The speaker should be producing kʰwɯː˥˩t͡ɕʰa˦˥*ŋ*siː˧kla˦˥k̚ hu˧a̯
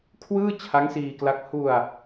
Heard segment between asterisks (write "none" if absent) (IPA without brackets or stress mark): ŋ